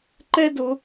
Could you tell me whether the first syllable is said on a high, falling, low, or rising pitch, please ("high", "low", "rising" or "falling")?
high